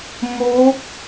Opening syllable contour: rising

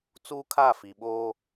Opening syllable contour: high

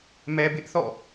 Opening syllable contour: low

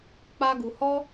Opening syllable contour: high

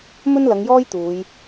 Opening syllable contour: high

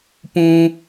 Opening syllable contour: low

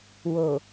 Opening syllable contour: low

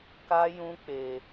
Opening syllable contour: high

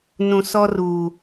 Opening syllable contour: low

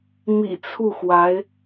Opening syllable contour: low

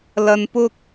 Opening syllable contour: high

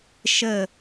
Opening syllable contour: falling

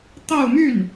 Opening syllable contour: falling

